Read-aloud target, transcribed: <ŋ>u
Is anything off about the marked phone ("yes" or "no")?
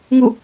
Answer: no